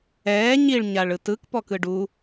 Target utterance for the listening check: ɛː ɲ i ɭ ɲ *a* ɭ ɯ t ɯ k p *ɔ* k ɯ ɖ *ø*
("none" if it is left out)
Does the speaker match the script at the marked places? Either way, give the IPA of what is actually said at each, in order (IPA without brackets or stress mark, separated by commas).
a, ɔ, u